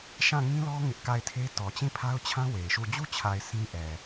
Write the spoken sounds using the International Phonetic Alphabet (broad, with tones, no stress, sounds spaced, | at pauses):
ʃ ã˦˨ ŋ ĩ˦ l ɔ˦ ŋ ɪ˦ ʔ k a˦˨ ɪ̯ tʰ e˦ t ɔ˨ t͡ɕ ĩ˦˨ pʰ a˦ ʊ̯ t͡ɕʰ ã˦ w e˨ ɪ̯ ʃ u˦˨ d͡ʑ u˦ t͡ɕʰ a˨ ɪ̯ sʰ ĩ˦ ʔ ɛ˨